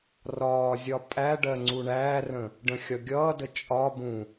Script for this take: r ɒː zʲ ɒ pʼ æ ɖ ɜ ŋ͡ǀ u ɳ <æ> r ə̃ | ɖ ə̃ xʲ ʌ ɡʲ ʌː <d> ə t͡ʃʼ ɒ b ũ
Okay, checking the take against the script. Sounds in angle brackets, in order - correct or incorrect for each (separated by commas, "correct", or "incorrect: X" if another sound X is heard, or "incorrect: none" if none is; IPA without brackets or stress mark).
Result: incorrect: æː, correct